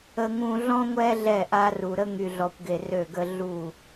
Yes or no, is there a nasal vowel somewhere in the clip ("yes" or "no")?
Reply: yes